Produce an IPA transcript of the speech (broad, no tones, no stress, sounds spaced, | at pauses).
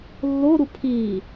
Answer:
lː o ɾ u pʰ i